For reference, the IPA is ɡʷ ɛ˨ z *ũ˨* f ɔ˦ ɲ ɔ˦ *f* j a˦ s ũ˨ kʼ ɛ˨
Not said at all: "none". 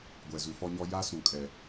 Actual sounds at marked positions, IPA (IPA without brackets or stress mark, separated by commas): u˨, none